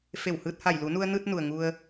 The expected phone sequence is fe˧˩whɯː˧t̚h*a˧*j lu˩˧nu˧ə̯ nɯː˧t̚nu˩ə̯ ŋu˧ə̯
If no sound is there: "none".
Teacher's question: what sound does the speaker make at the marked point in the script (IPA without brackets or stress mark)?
a˧˩